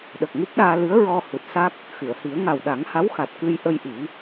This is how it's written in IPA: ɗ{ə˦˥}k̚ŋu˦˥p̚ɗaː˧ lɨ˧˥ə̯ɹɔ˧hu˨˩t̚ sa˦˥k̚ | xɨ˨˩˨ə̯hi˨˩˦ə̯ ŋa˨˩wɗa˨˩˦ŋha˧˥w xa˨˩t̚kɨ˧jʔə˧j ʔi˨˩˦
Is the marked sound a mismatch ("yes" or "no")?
yes